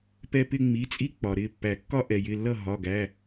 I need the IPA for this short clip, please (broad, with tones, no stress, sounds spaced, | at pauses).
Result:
p ɛ˦ p ɪ˦ ŋ͡m i˩˧˩ t͡sʼ i˦ k͡p ɒ˩ ɾ ɪ˩˧˩ pː æ˨˩˦ kː ɒ˦ ʔ ɛ˩ j ɪ˩˧˩ lː ʌ˥˨ ɦ ɒ˩˧˩ ɡ æ˩˧˩